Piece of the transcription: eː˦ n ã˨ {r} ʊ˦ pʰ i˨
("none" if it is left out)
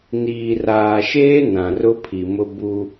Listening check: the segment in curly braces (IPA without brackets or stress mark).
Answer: r